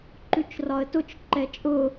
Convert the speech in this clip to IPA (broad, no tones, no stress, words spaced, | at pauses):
ǃʉt͡ʃrɒə̯tʊt͡ʃ ǃɛt͡ʃʼʊ